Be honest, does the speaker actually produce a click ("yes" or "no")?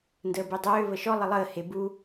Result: no